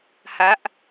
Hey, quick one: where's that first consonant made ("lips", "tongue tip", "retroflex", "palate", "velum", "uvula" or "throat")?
throat